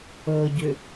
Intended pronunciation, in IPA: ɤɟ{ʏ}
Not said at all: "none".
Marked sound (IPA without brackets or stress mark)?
ʏ